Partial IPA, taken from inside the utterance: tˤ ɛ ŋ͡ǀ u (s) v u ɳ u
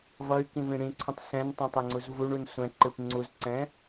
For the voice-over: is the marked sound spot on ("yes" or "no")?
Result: no